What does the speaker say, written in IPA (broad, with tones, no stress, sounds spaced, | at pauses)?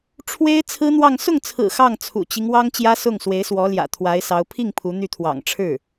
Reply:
ʈ͡ʂʰ w e˥ ɪ̯ t͡sʰ ɹ̩˥ n̪ w ɑ˥˧ ŋ s ʊ˥˩ ŋ t͡sʰ ɹ̩˨˩ x ɑ˥˩ ŋ t͡sʰ ṵ˨˩ t͡ɕ i˦ ŋ w ɑ˥ ŋ t͡ɕ j ä˥ s ʊ˥˩ ŋ s w e˧˥ ɪ̯ s w ɔ˧˥ l j ä̰˨˩ t̪ʰ w a˧˥ ɪ̯ s ɑ˧˥ ʊ̯ pʰ i˥˩ ŋ pʰ u˧˥ n̪ y˥˩ t̪ʰ w ɑ̰˨˩ ŋ ʈ͡ʂʰ ɻ̩˥˩